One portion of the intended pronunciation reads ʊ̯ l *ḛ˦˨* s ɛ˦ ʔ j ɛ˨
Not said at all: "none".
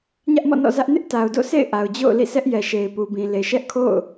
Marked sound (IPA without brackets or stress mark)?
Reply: ḭ˦˨